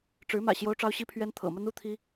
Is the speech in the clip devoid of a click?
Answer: yes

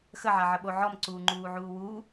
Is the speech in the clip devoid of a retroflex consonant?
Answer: yes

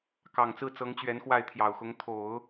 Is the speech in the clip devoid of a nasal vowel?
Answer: yes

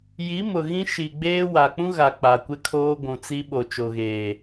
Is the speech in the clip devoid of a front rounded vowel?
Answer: yes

